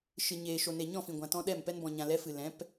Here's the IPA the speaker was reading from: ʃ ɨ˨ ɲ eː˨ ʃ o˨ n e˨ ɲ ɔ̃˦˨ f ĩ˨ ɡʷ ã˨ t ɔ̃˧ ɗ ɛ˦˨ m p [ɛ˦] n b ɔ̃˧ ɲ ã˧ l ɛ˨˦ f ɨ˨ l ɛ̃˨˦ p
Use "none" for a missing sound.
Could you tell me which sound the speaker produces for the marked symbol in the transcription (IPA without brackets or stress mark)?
ɛ˦